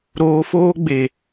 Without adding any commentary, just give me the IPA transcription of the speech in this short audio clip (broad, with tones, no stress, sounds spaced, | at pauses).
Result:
ɾ oː˨ f oː˦ ɡ͡b e˨